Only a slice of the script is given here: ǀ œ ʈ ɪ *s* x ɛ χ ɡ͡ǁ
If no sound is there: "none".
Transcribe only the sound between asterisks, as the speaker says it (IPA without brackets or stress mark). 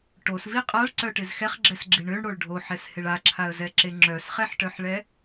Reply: z